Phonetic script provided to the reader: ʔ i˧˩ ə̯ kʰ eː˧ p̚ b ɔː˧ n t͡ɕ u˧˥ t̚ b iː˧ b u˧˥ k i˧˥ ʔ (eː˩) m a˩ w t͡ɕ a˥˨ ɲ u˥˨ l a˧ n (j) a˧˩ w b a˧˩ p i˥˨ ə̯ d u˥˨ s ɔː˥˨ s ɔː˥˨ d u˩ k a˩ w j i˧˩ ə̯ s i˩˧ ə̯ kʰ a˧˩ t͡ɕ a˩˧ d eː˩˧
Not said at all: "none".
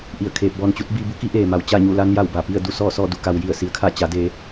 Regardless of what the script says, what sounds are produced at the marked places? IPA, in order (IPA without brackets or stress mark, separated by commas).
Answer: eː˩, j